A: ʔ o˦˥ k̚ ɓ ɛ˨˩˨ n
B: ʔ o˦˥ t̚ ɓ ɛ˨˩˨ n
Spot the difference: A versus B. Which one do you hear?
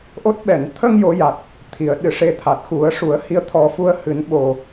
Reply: B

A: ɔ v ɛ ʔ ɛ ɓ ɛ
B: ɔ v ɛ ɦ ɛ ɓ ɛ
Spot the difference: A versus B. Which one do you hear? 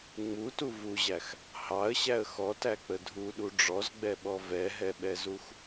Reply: B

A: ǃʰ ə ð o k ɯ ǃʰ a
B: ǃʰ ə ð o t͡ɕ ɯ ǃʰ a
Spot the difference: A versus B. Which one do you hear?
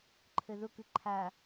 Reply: A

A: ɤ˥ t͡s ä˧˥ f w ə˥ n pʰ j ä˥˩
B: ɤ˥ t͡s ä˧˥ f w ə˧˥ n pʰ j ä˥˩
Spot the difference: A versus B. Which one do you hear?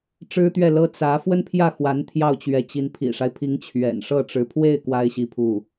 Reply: A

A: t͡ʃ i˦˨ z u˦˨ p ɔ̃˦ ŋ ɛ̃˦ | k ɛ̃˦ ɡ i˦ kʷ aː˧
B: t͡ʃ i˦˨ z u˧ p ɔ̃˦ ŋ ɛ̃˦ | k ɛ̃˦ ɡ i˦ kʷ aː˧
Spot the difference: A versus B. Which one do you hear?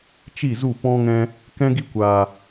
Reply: A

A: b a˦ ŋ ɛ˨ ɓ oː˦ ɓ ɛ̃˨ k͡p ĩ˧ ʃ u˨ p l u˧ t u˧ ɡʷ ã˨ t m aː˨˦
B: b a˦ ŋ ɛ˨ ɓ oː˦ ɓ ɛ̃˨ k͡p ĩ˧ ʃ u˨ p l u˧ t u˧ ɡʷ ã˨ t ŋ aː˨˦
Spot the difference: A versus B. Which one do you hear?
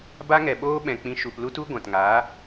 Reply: B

